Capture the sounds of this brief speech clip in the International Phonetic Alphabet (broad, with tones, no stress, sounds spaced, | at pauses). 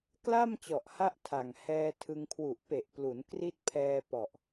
k l a˥˩ m t͡ɕ ɔ˨˩ ʔ h a˦˥ ʔ tʰ a˨˩ ŋ h ɛː˧ tʰ ɯ˧ ŋ kʰ w u˨˩ ʔ p e˨˩ ʔ p l u˩˦ n k r i˦˥ t̚ pʰ ɛː˧ p ɔ˨˩ ʔ